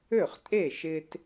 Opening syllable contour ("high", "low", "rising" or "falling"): falling